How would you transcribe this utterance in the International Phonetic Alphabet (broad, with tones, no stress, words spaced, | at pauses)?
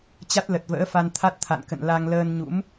t͡ɕa˦˥t̚lə˨˩t̚və̰ː˧˥fa˧n t̪ʰa˦˥t̚t̪ʰa̰˧˨nkə̰˧˨n la˧ŋ ləː˧nɲṵ˧˥m